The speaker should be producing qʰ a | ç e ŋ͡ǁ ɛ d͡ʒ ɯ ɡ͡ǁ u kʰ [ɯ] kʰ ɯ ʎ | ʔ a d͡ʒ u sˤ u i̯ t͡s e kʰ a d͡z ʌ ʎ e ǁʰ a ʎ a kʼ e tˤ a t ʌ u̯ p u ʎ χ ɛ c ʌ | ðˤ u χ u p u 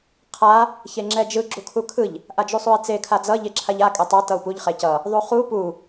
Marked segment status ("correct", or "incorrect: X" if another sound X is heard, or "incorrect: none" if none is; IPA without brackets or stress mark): incorrect: u